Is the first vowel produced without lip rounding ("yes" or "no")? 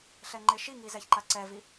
yes